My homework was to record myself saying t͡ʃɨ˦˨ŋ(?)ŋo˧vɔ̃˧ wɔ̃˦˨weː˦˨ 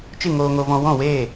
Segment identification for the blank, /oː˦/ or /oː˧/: oː˧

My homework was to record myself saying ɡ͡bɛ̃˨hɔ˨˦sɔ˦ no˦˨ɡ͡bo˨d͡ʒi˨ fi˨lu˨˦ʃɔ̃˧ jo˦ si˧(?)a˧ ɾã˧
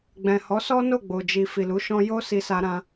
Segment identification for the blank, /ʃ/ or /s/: s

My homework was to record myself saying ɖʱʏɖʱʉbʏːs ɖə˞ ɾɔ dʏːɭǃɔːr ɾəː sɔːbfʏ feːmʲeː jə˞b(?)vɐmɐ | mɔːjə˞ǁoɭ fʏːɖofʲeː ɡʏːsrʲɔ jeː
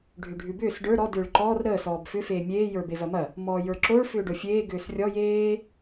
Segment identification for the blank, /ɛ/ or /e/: e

